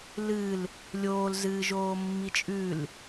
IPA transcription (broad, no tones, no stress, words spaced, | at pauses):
lɨl | lʲoːlzɨːʒoː mːit͡ʃʼʉl